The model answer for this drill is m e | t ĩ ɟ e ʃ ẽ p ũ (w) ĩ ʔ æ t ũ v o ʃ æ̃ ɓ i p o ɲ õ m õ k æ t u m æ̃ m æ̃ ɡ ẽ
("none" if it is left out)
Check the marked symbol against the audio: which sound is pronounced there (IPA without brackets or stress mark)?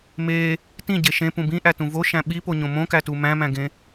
b